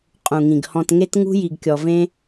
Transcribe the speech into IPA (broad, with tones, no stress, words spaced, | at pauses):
qʼũ˨ŋĩ˨ɡ hɔ̃˨tŋe˧tŋṳ˧ ji˨ɡkʲɔ˨vẽ˧